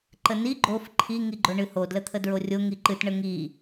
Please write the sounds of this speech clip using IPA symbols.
ǃ ə n i ɡ͡ǃ o f ǃʰ i ŋ i ɡ͡ǃ o ɳ ɨ h o d l ə t̪ʰ ə d ɹ o rʲ o ŋ i ǃ ɨ t ɳ ə ŋ i

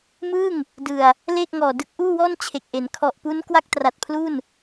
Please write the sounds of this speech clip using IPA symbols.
m ɯː˥˩ ŋ | d ɯ˨˩ a̯ | l eː˥˩ k̚ ŋ ɔː˨˩ d ɯ˦˥ k̚ ʔ uː˥˩ w ɔː˥˩ n t͡ɕʰ e˨˩ k̚ ʔ e˩˦ n kʰ ɔ˨˩ ʔ p u˦˥ n k w a˥˩ k̚ t r a˨˩ t̚ pʰ l u˥˩ n

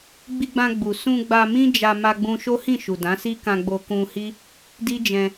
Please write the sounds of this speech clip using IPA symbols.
ɡ͡b i˧ ɡ͡b ã˧ ɡ͡b u˨ s ũ˧ ɡ͡b a˧ m ĩ˦ d͡ʒ a˧ m a˧ ɡ͡b ũ˧ ʃ o˦ h ĩ˦˨ ʃ u˨ d ã˨˦ s i˦ k ã˧ ɡ͡b o˧ k ũ˧ h i˦ | d i˦ d͡ʒ ɛ̃˧

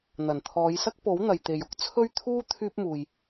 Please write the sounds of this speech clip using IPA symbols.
n̪ ɐ˨˩ n t̪ʰ ɔː˨˧ j s ɐ˥ k̚ p o˨˥ w n̪ ɐ˨ j t̪ e˨ j ʊ˨˥ k̚ t͡sʰ ɵ˥ ɥ t̪ʰ uː˥ t̪ʰ yː˥ p̚ m uː˨ j

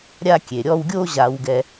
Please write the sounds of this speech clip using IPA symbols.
ɾʲ a˦ kʲ e˩ ɾʲ ɔ˦ w ɡʲ o˥ ʑ a˨ w ɡ ɛ˨

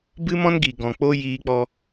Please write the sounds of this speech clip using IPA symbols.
b ɨ˦ m ɔ̃˦ n ɡ i˨ ɡ ɔ̃˨ k͡p o˦ j iː˧ k͡p ɔ˧

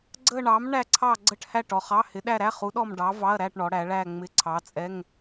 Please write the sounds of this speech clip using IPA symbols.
ɡ͡ǀ ə˥˧ ɳ ɑ˨˥ m ɳ æ˥˧ ǀʰ ɑ˥˧ ɡ͡ǀ ə˥˧ ʈ h æ˥˧ ʈ ɔ˩˧ χ ɑ˧˥˧ h ɪ˨˥ ɗ æ˥˧ ɾ æ˧˥˧ χ u˨˥ ɗ ɔ˥˧ m ɖ ɑ˨˥ v ɑ˧˥˧ ɐ̯ ɾ æ˥˧ ʈ ɳ ɔ˩˧ ɽ æ˩˧ ɭ æ˥˧ ŋ͡m ɪ˧˥˧ ǀʰ ɑ˨˥ t͡sʼ ɛ˧˥˧ ŋ

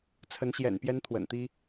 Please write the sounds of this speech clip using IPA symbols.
t͡sʰ ə˨˦ n ɕ j ɛ̰˨˩ n p j ɛ˦ n t̪ʰ w ə̰˨˩ n t̪ i˦

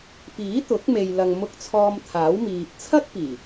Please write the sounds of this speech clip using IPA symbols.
p iː˨˥ t̪ ʊ˨˥ k̚ m e˨ j l ɐ˨ ŋ m ʊ˧ k̚ t͡sʰ ɔː˧ m t̪ʰ aː˨˥ w m iː˨ p̚ t͡sʰ ɐ˥ k̚ p iː˨˩

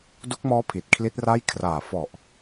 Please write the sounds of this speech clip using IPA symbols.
d u˦˥ k̚ m ɔː˦˥ pʰ i˨˩ t̚ kʰ l i˦˥ t̚ r a˥˩ j kʰ r aː˨˩ f ɔ˨˩ ʔ

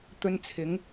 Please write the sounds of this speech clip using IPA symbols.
t̪ ɵ˧ n t͡sʰ ɪ˨˧ ŋ

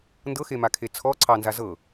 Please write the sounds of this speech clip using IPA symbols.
n d ɤ x e m a kʰ e t͡sʰ ɔ ǀʰ ɑ n z a z ɤ

